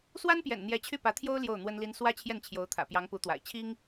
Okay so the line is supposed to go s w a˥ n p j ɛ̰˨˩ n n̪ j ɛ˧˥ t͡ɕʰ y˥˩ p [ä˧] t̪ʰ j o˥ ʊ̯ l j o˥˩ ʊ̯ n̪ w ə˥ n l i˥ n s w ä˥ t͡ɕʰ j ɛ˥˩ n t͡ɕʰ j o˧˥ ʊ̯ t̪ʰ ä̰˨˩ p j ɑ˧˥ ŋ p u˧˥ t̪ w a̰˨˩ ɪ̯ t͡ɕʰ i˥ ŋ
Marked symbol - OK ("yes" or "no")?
no